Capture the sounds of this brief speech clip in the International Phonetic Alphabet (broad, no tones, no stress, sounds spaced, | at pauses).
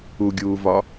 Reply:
u ɡʲ uː v ɒ